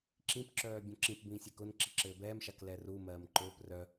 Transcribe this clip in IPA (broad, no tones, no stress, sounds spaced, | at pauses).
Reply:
ǁ ĩ p ǁ œː bʲ õ ǁ ĩ p b ĩː sʲ ɛ k ʊ n ǁ i ǁ ɘː b ɛː m ʃ a k l ɛ r u m ɜː m ǃ ʊː p r œ